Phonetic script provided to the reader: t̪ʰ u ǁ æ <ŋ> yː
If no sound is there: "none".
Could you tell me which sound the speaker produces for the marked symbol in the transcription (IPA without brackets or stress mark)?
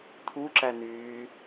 n